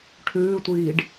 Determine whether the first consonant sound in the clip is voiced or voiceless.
voiceless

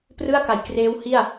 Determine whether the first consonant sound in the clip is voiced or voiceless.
voiceless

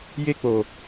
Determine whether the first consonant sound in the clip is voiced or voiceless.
voiced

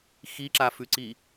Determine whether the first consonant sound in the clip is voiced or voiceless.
voiceless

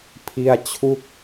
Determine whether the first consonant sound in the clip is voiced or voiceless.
voiceless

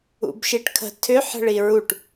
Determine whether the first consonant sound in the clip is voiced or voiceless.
voiced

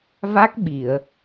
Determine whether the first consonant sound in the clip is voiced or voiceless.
voiced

